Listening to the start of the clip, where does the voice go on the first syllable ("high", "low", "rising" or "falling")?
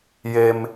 low